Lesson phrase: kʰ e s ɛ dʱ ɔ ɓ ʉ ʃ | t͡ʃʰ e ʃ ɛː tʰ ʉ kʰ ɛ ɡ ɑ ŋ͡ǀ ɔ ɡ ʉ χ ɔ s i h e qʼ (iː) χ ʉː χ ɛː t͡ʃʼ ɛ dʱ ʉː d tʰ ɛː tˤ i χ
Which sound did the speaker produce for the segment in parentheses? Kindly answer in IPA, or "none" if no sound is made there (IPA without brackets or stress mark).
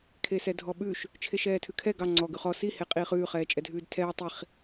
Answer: iː